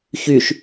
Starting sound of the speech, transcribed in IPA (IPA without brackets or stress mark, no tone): ç